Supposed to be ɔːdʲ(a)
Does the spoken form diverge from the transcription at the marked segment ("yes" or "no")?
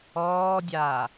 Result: yes